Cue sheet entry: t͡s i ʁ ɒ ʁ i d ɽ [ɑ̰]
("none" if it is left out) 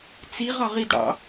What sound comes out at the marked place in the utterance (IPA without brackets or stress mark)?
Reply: ɑ̰